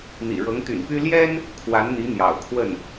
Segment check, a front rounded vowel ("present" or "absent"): present